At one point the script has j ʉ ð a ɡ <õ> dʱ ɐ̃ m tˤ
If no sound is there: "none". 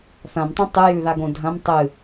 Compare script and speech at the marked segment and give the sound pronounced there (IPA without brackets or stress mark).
õ